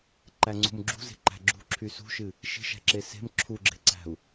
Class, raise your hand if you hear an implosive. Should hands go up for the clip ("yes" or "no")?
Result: no